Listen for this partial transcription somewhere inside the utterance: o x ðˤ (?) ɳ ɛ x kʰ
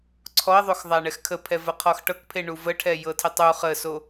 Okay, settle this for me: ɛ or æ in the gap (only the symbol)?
æ